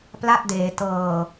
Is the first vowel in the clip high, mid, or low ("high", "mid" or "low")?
low